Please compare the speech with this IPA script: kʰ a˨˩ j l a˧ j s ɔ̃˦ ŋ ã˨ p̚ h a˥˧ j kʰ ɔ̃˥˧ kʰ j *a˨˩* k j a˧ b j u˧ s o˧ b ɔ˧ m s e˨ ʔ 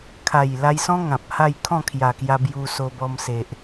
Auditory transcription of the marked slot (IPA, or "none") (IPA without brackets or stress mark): a˨˩